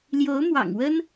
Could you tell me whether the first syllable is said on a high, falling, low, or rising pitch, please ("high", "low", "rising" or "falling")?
rising